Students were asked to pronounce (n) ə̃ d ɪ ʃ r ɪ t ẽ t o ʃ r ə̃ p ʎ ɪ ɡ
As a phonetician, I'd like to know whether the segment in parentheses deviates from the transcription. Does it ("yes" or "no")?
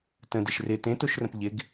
yes